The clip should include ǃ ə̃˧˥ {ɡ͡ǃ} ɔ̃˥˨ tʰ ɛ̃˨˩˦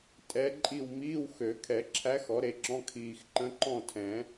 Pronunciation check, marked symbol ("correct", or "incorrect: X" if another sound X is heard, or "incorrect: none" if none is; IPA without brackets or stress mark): incorrect: ǃ